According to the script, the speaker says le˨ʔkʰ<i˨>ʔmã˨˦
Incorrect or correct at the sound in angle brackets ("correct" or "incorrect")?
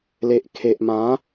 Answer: incorrect